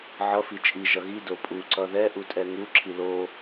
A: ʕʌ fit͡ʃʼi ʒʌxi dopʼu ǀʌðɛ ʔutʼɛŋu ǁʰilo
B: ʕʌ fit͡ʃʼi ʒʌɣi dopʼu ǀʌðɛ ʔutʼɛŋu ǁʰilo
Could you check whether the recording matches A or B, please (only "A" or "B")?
B